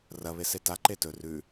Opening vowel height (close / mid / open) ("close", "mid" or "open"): open